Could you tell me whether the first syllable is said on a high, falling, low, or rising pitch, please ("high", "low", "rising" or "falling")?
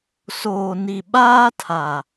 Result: low